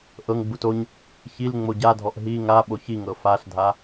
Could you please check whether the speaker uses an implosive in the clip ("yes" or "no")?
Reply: yes